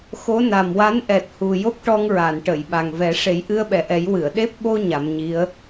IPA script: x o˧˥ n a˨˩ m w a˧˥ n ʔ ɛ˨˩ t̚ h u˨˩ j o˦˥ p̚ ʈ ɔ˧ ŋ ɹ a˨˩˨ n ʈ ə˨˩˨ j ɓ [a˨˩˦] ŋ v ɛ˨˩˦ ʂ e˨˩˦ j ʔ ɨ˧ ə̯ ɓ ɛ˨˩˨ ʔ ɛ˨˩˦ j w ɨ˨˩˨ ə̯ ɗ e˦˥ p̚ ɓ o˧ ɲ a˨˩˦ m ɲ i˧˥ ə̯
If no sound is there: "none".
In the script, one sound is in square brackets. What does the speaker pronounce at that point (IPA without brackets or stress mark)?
a˨˩